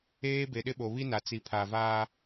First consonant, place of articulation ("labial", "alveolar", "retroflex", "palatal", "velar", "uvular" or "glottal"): labial